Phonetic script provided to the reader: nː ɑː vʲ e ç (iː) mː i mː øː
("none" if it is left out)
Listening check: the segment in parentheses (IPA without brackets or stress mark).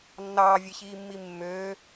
iː